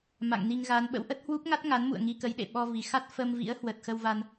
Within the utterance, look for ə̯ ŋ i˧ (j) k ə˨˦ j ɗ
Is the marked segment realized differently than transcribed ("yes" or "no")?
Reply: yes